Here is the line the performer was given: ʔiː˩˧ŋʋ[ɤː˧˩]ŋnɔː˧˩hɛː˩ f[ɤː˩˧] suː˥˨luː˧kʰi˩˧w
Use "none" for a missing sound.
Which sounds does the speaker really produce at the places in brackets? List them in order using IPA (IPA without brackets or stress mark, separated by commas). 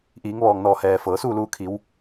ɔː˧˩, ɤː˩˧